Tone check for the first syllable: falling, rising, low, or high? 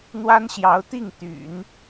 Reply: high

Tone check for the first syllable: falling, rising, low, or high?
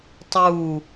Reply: falling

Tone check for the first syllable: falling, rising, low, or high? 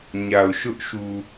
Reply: low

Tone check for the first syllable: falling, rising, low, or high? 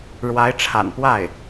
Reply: rising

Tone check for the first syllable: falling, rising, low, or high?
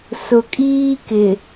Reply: low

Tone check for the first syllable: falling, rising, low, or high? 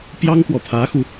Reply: high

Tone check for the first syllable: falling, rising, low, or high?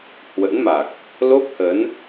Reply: rising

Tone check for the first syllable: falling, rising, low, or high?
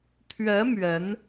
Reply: rising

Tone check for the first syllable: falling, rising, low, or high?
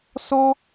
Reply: high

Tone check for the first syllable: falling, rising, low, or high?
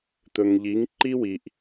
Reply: low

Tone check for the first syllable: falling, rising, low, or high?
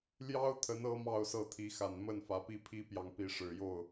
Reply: high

